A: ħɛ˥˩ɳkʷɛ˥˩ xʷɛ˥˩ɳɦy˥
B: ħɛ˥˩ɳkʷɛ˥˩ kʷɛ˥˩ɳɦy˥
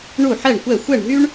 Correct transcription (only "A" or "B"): A